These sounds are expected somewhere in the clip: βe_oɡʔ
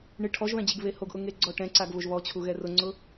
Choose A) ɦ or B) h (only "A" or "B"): B